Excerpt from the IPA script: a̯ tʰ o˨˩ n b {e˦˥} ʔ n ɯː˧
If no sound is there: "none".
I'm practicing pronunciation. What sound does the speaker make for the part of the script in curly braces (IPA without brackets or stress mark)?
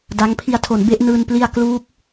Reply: e˦˥